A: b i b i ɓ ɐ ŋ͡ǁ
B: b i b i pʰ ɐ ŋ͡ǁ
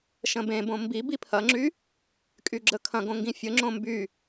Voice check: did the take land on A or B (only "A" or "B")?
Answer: B